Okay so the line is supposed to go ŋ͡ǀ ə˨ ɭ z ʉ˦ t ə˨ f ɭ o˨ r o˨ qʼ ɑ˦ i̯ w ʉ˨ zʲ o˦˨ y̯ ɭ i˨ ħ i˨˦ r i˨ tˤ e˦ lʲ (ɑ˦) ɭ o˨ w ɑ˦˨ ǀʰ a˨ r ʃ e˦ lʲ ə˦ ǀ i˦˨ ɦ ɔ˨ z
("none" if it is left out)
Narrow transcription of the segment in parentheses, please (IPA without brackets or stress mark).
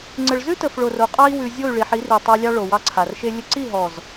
ɑ˦